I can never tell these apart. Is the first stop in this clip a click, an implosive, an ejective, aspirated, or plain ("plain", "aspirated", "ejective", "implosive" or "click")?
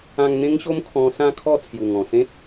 aspirated